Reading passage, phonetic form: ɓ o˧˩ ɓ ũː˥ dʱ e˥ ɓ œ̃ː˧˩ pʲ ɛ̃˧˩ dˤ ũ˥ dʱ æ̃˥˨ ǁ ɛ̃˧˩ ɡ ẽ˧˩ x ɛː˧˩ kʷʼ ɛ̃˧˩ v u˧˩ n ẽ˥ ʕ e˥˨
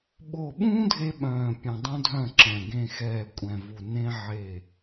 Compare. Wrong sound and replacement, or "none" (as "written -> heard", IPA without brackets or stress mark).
æ̃˥˨ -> œ̃˥˨